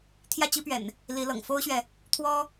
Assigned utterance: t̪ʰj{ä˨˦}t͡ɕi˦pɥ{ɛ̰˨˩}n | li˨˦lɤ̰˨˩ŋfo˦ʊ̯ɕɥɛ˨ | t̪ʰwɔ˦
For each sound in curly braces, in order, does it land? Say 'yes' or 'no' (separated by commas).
no, yes